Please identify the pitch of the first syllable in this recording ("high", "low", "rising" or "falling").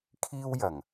high